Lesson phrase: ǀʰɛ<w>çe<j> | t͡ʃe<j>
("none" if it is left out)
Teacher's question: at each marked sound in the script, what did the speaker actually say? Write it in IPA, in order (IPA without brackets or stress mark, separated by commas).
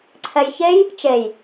j, j, j